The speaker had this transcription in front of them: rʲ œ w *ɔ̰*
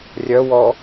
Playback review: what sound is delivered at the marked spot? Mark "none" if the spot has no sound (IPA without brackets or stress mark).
ɔ